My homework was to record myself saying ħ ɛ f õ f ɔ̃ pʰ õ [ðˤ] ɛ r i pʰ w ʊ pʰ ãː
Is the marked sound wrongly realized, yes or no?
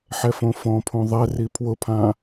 no